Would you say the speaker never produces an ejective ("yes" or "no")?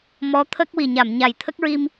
yes